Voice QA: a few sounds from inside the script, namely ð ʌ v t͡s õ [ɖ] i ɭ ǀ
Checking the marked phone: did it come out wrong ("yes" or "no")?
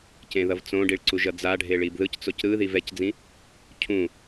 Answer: no